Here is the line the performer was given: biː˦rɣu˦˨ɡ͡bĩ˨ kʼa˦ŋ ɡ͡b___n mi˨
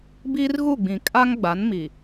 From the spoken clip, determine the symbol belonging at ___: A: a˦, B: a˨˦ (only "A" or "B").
B